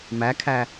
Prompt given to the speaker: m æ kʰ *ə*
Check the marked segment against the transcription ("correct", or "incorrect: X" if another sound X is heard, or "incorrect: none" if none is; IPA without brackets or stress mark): incorrect: æ